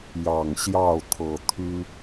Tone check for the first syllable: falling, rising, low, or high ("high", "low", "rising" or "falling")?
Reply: low